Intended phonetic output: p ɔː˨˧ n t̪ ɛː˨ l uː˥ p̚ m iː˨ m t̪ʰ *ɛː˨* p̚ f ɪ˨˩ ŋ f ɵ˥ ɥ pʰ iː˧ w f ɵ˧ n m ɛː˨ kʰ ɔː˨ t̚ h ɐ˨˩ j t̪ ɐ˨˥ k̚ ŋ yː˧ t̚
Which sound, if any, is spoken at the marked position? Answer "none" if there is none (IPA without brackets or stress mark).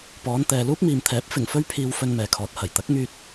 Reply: ɛː˨˥